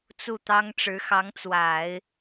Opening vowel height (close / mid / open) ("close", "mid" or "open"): close